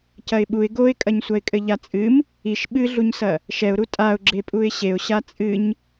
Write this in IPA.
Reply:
c ɐ ɪ̯ ɓ u ɪ̯ ɡ o ɪ̯ kʼ ɐ ɲ sʷ ɐ ɪ̯ kʼ ɘ ʎ a t͡sʼ ɨ m | i ʃ ɓ ɨ ɮ u ɲ s ɐ | ʃ ɛ ʊ̯ ɾ u tʼ a ʊ̯ ɡ͡ǁ e pʼ u ɪ̯ ɕ e ʊ̯ ɕ a t͡sʼ ɨ ɲ

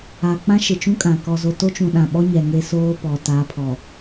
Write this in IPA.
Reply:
a˨ k͡p ã˦ ʃ ɪ˨ t͡ʃ ũ˦ kʼ ã˨ k ɔ˨ z o˨ t o˦ t͡ʃ ũ˨ ɗ ã˨ ɓ ɔ˦ ɲ ɛ˨ ŋ e˦ s oː˦ p ɔ˨ t a˨˦ pʰ ɔ˨

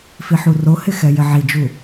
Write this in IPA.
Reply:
f i ħ u r o h ɪ x ɛ j ɪ ʕ i d͡ʒ u

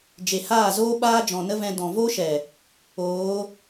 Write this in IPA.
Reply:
d͡ʒ e˨ h aː˦˨ z oː˦ ɓ aː˦ d͡ʒ ɔ̃˨ n ə˦ v ɛ̃˧ d ɔ̃˨ v o˦ ʃ ɛ˨ | oː˨˦

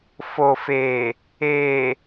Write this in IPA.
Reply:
f o˨ f eː˨ | eː˨

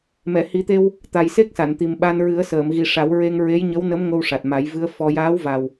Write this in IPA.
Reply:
m ɛ˨˩˨ h i˨˩˦ t̪ e˧ w | t̪ a˨˩ j s e˦˥ k̚ s a˨˩˨ n t̪ i˨˩ m ɓ a˧ n ɹ ɨ˨˩˦ ə̯ s əː˨˩˨ m ɣ i˨˩ ʂ a˨˩˦ w ɹ e˧ ŋ ɹ e˧˥ j ɲ ə˧˥ w n ə˧˥ m ŋ o˧ w ʂ a˨˩ t̚ m a˨˩˦ j v ɨ˧˥ ə̯ f ɔ˧ j aː˧˥ w v a˨˩ w

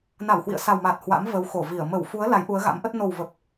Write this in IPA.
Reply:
n a˧˩ w h w ḭ˧˨ ə̯ s a˨˩ w m aː˨˩ t̚ h w a̰˧˥ m v ə˨˦ w x o˧˩ v i˧˩ ə̯ m ə˧˩ w f u˨˦ ə̯ l a˨˦ j ʔ u˨˦ ə̯ ɣ a̰˧˥ m ʔ ə˦˥ t̚ n o˨˩ w v ə˨˩ p̚

